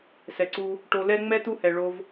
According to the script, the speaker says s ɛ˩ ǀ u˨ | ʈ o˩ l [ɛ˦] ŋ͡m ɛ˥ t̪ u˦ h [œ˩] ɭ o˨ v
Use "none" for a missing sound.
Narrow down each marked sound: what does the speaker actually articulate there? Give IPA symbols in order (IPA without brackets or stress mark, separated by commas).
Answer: ɛ˦, ɛ˩